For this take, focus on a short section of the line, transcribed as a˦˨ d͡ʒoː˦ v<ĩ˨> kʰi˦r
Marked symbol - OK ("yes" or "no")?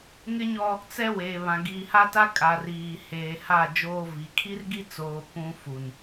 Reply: no